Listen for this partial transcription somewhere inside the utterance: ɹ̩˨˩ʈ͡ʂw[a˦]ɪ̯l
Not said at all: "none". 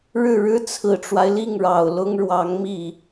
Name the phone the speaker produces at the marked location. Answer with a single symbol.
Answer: a˦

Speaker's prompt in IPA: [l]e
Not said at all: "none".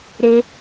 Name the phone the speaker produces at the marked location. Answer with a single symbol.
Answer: ɾ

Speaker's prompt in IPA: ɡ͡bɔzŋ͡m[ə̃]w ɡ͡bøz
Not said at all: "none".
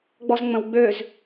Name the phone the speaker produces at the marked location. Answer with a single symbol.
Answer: ə̃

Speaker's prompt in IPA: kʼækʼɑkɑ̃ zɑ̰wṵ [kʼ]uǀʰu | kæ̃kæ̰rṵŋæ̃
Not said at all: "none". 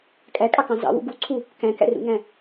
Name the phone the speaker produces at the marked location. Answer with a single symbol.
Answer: ɡ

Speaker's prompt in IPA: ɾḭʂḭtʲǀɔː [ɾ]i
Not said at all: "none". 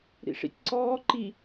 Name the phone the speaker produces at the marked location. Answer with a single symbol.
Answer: ǃ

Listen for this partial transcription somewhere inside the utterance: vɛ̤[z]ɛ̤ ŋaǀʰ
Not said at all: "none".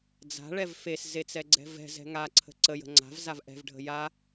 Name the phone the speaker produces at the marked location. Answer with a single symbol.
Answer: z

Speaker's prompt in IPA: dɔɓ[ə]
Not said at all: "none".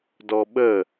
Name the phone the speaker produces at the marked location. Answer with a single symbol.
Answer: ə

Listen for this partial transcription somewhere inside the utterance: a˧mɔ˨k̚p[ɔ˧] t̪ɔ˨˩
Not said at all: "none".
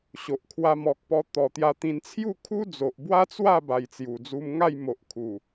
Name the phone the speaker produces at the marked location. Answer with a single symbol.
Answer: ɔ˧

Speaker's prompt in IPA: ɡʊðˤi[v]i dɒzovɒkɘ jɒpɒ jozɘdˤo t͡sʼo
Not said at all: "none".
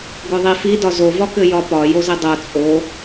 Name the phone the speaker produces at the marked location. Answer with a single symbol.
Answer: f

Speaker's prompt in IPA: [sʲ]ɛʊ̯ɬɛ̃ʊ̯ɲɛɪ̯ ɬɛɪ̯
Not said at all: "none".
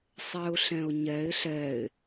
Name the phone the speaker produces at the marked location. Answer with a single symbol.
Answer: sˤ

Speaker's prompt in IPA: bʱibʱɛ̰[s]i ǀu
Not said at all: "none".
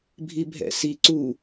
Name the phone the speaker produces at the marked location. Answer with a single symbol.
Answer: s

